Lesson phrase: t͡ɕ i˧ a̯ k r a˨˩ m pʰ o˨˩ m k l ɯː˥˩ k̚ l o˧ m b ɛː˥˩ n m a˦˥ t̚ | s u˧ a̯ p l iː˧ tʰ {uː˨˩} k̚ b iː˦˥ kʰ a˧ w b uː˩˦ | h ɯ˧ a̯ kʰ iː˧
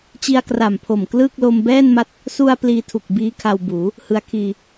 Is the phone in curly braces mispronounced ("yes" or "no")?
yes